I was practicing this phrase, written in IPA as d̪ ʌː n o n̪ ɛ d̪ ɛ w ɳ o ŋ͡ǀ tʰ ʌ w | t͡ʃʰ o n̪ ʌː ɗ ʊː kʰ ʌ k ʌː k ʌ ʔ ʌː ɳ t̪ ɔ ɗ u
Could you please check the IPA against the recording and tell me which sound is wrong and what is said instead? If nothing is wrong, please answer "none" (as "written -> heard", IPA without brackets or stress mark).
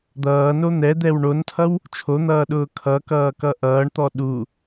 ŋ͡ǀ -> n